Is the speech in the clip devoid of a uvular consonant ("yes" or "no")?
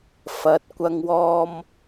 yes